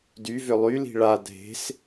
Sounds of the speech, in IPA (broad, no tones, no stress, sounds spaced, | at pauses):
d y v ø lˠ y l i̤ ɭ a dʱ e̤ s